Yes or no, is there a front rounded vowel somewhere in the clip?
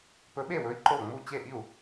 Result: no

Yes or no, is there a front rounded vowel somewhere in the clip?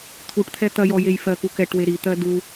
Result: no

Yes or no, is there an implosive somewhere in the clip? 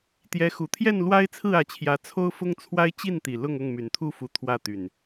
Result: no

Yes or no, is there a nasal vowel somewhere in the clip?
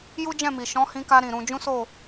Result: yes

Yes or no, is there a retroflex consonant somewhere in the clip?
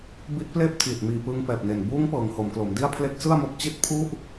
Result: no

